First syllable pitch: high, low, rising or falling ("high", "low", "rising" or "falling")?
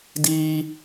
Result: high